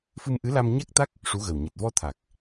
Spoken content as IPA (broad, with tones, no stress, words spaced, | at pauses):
fɨ˧mʔɨ˧˥la˧m ɲa˦˥k̚t̪a˦˥k̚ | ʂu˧˥ɣə˨˩w ɲɨ˨˩t̚vɔ˧t̪ʰa˨˩k̚